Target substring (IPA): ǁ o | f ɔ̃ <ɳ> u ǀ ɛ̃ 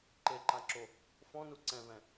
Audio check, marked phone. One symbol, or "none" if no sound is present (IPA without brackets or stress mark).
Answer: n